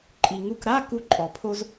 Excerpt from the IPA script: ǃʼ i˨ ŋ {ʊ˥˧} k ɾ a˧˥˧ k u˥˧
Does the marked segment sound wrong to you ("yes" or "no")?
yes